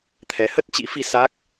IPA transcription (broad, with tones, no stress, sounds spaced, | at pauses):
t̪ʰ ɛ˨˦ h ə˦˥ t̚ t͡ɕ ḭ˧˥ f i˧ s a˦˥ k̚